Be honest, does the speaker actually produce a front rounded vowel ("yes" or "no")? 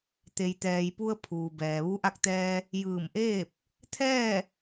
no